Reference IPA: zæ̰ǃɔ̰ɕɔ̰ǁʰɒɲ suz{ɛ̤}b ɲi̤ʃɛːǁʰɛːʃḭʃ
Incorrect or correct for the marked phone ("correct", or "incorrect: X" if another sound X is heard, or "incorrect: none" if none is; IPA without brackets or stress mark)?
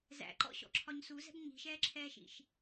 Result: correct